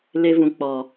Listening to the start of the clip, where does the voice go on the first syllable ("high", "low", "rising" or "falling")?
high